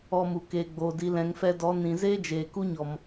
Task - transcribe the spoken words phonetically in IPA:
ɔ˧ m u˨ k eː˨ ɡ͡b oː˨ d i˨ l ɛ̃˨ ŋ f ɛ˧ d ɔ˨˦ n ĩ˨ z eː˦ d͡ʒ eː˨ k u˦ ɲ ɔ˨ m

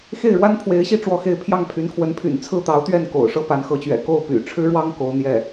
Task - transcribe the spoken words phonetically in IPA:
x e˥˩ ɪ̯ ɻ w a˥ n pʰ w e˧˥ ɪ̯ ɕ i˥˧ ʈ͡ʂ w ɔ˥˧ x e˥˧ ɪ̯ pʰ j ɑ˥˩ ŋ pʰ y˧˥ n kʰ w ə˧˥ n pʰ y̰˨˩ n t͡sʰ ɹ̩˥˩ t̪ ɑ˧˥ ʊ̯ t̪ ɥ ɛ˥˩ n k o̰˨˩ ʊ̯ ʂ ɤ˥˩ p a˧˥ n x ɤ˧˥ t͡ɕ ɥ ɛ̰˨˩ k o˥˩ ʊ̯ p y̰˨˩ ʈ͡ʂʰ ɻ̩˥ ɻ w ɑ˥ ŋ k o˧˥ ʊ̯ n̪ j ɛ˥˩

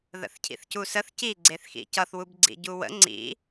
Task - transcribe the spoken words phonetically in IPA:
ð ə̰ θ cʰ ḭ θ c u s ə θ c i ɡ͡ǀ e θ x ḭ c ʌ θ w u b ɡ͡ǀ ḭ ɟ u w ə̰ ŋ͡ǀ ḭ

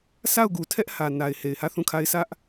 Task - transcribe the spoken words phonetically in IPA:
sʰ a˦˨ ʊ̯ ɡ u˨ tʰ ɛ˦ ʔ h ä˨ n a˨ ɪ̯ h e˨ ɪ̯ h ä˦˨ θ ũ˦˨ kʰ a˦ ɪ̯ sʰ ä˦ ʔ

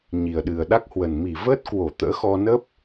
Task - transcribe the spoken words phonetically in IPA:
ɲ i˨˩ ə̯ ɗ ɨ˨˩ ə̯ ɗ a˦˥ k̚ h w ə˨˩ n m i˧˩ v əː˦˥ t̚ k w o˧˩ t̪ ə̰ː˧˥ x ɔ˧ n ə˦˥ p̚

